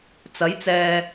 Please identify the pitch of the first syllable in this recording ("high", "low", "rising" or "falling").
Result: rising